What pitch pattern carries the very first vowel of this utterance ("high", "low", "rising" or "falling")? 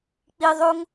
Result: low